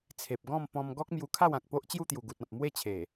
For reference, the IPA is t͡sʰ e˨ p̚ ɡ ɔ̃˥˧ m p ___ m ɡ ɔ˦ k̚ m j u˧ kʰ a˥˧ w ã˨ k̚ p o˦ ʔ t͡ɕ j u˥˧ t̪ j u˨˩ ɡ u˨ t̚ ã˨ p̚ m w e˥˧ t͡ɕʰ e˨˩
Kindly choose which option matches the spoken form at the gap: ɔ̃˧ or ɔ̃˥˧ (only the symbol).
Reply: ɔ̃˧